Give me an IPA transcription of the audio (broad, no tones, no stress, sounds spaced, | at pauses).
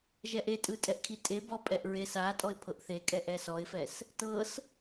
ʒ ɛ ʔ e tʼ ɯ tʼ ɛ ʔ kʰ i tʼ e b ɔ pʼ ɛ ʔ ɹ e s a tʼ ɔ ɪ̯ pʰ ɤ ʔ θ e kʼ ɛ ʔ ɛ s ɔ ɪ̯ f ɛ s | t ɤ s